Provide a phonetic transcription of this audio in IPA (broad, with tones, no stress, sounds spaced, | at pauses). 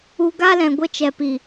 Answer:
u˧ ɡ a˦ l ɛ̃˨ ɡʷ ə˧ t͡ʃ ɛ˨ p i˨